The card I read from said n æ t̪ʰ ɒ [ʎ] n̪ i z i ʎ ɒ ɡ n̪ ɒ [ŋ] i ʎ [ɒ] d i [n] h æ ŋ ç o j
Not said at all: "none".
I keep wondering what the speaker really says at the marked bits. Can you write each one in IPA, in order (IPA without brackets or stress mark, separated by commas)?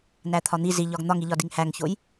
none, ŋ, ɒ, ŋ